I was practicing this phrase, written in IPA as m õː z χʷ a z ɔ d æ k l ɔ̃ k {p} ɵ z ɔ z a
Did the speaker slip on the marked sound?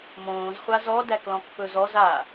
no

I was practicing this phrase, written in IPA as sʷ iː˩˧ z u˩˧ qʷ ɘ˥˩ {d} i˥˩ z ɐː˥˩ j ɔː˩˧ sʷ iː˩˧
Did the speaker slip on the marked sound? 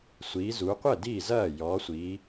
no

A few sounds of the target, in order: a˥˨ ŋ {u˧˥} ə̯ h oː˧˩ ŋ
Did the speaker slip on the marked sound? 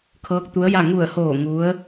yes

